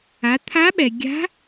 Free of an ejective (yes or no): yes